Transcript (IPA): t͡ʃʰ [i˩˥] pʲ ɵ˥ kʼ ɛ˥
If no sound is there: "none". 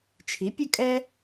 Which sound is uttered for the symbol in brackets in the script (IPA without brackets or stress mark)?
i˩˥